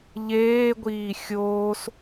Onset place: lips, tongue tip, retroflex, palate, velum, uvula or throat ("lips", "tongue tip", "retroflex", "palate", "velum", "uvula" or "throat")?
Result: palate